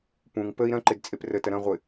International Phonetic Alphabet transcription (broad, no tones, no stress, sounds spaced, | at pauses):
p ũ ŋ p ə i̯ ɾ ɐ̃ ǃ ɪ d t͡sʼ e p r ə t ɐ ɾ ɐ̃ ʁʷ ɪ